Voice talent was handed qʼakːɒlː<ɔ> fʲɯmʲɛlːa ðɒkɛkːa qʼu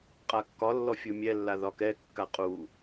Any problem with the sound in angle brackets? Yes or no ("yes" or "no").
no